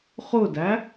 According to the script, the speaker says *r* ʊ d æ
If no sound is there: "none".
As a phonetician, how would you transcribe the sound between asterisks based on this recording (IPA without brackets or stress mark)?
χ